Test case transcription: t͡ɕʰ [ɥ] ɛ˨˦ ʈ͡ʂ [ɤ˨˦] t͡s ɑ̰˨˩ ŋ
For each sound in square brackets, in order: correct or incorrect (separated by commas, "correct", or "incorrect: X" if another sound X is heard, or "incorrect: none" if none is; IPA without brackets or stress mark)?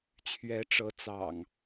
correct, correct